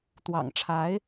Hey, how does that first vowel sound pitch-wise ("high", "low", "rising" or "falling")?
low